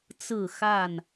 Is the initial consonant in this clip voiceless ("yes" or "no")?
yes